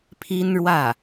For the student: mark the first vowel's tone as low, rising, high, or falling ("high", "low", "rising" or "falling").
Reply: high